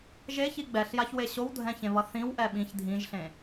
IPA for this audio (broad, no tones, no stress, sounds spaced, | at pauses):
ʒ e ç i ɡ͡b ɛ ɬ j a ç w e ɕ o w dʱ ɛ̃ ç ẽ β ʌ θ ĩ w ʔ ɛ ɓ ĩ ç dʱ ĩ ʒ ɬ ẽ